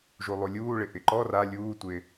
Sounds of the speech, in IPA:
ʒulˠulʲuːɭɪ ʔɪǃɔ ra lʲuːtʷɪː

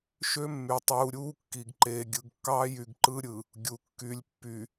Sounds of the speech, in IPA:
ʃø˦mːy˨tˤuː˨ɾʲuː˦ kːi˨ɡ ǃeː˨ɡʲɯ˨ɡkːɑː˦jy˨ɡ ǃɯ˦ɾʲɯ˨ | ɡʲu˨kːy˨lʲ pːy˨

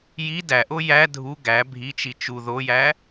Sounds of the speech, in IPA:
ji dæʔo jæ dʱu ɡæ bʱit͡ʃi t͡ʃu ðojæ

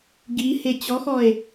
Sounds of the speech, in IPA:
ɡihe t͡ɕɔxɔe̯

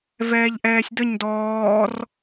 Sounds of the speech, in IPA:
vɛːʎʔɛːsʲdəɲ dɔːr

